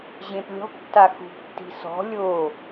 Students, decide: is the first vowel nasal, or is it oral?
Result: nasal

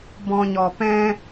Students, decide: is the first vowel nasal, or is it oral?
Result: nasal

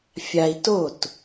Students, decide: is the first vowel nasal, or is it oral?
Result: oral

